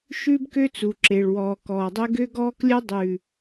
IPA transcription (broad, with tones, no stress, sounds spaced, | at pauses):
ʃ ʉ˦ b k ø˦ t͡s u˨ ǁ e˨ ɭ w ɔː˨ k ɔː˨ dˤ ø˦ ɡ ø˦ ɡ ɔː˦ k lʲ œ˦ dˤ ʉ˨